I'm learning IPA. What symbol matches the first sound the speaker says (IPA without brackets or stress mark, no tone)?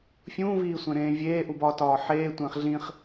fʲ